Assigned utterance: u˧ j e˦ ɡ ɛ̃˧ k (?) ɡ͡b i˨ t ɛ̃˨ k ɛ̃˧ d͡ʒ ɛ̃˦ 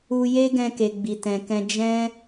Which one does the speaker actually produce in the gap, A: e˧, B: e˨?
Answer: B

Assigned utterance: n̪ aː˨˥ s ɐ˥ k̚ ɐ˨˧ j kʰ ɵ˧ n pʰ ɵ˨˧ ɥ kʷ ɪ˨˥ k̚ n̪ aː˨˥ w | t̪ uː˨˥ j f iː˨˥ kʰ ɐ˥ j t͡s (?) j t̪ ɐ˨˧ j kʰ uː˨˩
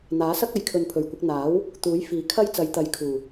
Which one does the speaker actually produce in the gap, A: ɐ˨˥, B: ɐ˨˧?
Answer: B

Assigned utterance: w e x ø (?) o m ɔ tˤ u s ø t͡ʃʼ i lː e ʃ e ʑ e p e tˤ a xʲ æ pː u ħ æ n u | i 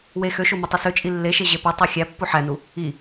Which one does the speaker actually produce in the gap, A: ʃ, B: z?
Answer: A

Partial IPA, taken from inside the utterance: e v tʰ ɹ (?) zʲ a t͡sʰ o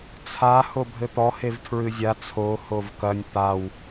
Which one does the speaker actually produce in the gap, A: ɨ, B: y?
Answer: A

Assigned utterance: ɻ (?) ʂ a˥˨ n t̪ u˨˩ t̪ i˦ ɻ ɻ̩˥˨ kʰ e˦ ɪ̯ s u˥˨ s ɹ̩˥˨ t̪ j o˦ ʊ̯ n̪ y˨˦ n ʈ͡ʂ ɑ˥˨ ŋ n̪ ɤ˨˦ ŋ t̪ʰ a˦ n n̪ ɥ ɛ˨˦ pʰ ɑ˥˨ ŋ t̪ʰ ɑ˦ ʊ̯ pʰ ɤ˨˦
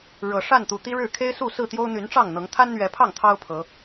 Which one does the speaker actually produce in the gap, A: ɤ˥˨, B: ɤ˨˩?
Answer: B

